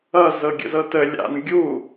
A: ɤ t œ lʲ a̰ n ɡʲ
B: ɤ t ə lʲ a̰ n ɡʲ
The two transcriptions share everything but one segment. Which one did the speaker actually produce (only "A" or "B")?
B